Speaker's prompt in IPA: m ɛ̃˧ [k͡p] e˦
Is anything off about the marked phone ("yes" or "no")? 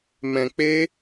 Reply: no